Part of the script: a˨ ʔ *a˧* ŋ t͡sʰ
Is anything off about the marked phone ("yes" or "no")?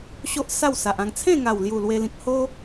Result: yes